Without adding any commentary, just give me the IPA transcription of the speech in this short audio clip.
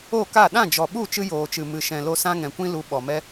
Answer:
o˦˨ka˦˨ ɗã˦˨d͡ʒɔ˨ɓu˦˨ t͡ʃɨ˧joː˨t͡ʃɨ˨ mɨ˨ʃɛ̃˨lo˧ sã˧ŋɛ̃˨kʷĩ˧lu˨˦ ɓɔ˨mɛ˧

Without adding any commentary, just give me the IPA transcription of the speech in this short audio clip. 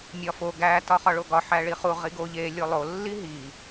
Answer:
mʲɒfo ɡæ tɒχɒɭoɡɒ ħæɭiχu ʁiɡo ʎe lʲolˠo lːiɦi

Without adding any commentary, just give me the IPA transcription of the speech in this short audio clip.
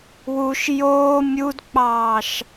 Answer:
wuʃ joː mʲudk͡pɑːʃ

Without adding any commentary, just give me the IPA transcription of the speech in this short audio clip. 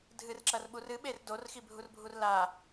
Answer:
dʱɨrǁɐrɓu rɨɓer dorxibʱurbʱur la

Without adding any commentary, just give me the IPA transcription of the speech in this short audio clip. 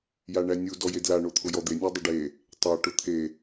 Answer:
jaɳænʲu dɔjedla ɳot̪ʰʊjɔd̪e nʲadˤʊɖe | tˤa ʈʊt̪ʰe

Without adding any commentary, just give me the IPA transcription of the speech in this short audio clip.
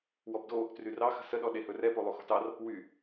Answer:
wɔbdo | tryrɑ xə̤səɗɔ ɗehɵrɛ polˠoxo̤tɑr | wy

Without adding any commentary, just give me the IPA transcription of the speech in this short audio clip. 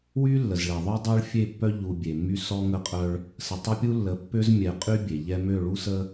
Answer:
wy˦lːə˨zɭe˨ ðˤœ˦dˤø˦ɭfʲe˦˨pːœ˦ ʎu˨ bʲe˨mːy˦ sɔ˦ŋə˦˨qʼœ˦ɭ | sə˨tˤə˦pʲu˦lːə˨˦ pːø˦zmʲɛ˨qʼy˦ bʲe˨ʎɛ˦ mø˦˨ɭu˦sə˦

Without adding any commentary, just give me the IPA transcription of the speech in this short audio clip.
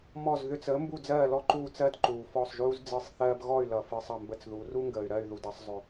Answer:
mɔ˥˩z ðʏ˧t͡səː˩˥ mbu˥˩d͡zɜː˥˩lɔ˥˩ ǃuː˥˩t͡sɜ˥d ǃuː˩fɔ˥˩sˤʒuː˥z d͡zɯ˩˥sˤθɜː˧bɣɔ˥˩y̯lʌ˩ fɯ˧sˤʌ˥˩mbə˥˩t͡sðu˩˥ ru˥ŋɡəː˩y̯ɾɜ˥˩y̯ ðu˩dʌ˥˩sˤzˤʏ˩

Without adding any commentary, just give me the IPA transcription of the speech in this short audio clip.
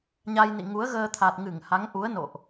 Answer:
ɲa˧jnḭ˧˨ŋu˨˦ə̯ɣəː˧ t̪ʰa˨˩t̚ŋɨ˧˩ŋ ha˨˦ŋʔu˨˦ə̯ no̰˧˨ʔ

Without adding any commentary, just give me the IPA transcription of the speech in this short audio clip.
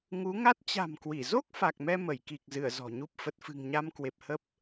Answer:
ŋu˨˦ŋa˦˥t̚ t͡ɕa̤˨˩mkwi˧˩zo˦˥k̚ fa˨˩k̚mɛ˧ mə˧˩jki˨˩k̚zɨ˧˩ə̯ zɔ̤˨˩ɲu˦˥p̚ fə˨˩t̚fɨ̤˨˩ŋɲa˧mkwe˨˩p̚ hə˦˥p̚

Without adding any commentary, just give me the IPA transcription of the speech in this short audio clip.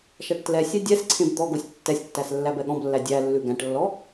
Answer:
ʃæʈtlɛsʲɛ dʲɛsǀʰẽb d̪ɔɡosʲ tːɛsʲtːæs lːæbɛɠɔ̃blːæ dʲælːʉ ɡæ̃ʈlːɔ

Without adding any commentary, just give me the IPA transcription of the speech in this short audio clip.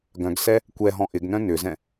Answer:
ɡœ̃ɡsɛ | kʷɛɦɔ̃ ʔɪɡnœ̃ nʏzɛ̃

